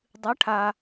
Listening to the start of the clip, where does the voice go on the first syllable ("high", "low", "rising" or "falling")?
rising